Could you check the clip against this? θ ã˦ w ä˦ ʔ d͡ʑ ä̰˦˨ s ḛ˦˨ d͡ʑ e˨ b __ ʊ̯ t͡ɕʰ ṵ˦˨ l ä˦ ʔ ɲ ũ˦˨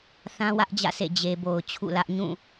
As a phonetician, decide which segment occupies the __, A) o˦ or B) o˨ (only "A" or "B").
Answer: B